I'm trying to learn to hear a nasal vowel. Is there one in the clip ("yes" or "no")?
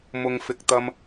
no